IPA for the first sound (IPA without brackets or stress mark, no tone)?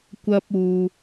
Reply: kʷ